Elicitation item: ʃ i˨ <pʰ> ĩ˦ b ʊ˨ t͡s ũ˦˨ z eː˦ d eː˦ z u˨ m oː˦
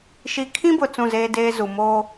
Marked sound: incorrect: kʰ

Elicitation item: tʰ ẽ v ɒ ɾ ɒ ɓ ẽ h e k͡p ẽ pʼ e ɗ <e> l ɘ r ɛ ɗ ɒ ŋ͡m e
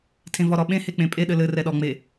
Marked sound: incorrect: ɘ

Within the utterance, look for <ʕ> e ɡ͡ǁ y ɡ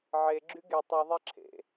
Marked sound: correct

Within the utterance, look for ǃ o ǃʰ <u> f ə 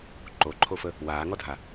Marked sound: incorrect: o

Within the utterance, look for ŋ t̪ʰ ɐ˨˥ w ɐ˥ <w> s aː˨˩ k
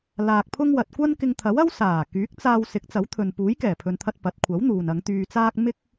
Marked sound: correct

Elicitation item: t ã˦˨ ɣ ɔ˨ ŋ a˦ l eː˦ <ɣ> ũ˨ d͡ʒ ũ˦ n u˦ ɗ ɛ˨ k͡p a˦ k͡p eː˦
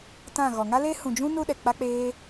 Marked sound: incorrect: h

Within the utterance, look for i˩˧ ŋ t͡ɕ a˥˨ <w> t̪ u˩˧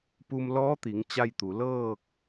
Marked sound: incorrect: j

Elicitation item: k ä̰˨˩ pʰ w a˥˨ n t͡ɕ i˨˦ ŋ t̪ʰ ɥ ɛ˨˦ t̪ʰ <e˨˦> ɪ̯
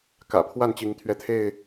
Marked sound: incorrect: e˥˨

